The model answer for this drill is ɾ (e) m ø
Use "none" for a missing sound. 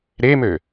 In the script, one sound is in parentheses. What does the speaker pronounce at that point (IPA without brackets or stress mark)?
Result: e